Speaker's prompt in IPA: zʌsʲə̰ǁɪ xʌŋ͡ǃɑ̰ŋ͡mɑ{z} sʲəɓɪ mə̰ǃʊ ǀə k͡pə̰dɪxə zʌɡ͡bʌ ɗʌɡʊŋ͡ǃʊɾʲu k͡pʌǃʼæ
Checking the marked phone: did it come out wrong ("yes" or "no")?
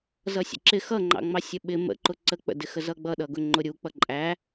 yes